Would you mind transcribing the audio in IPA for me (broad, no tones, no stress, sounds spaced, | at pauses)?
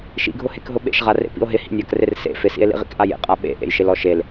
ʃ ḭ ɡʱ ʊ h e k ɦ ʊ ɓ ḛ ʃ ʁ a r ḛ p ḭ o̯ ɦ ɪ h ḭ nʲ a k r ɪ r s ḛ f ɪ s ḭ e̯ l ḭ ʁ ḭ k ʔ a j ḛ qʼ a ɓ ḛ ʔ ḛ j ʃ ɪ l ɔ ʃ e l